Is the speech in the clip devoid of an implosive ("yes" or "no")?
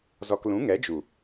yes